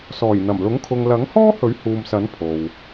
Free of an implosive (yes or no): yes